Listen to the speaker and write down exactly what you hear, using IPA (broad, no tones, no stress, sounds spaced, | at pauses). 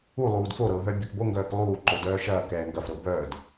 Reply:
u lˠ uː d f o ɾ ɤ ɦ œ bʲ o k b o ŋ ɡ œː k lˠ uː ǃ o d œː ʃ ɐː k ɛː ŋ ɡ ɐ f ɾ ɤ b œː d